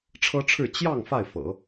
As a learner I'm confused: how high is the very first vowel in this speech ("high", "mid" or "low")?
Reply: mid